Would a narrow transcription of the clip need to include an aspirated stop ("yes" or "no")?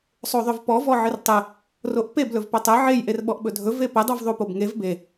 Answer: no